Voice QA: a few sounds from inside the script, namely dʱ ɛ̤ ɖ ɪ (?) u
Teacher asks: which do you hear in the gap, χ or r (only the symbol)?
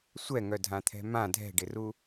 r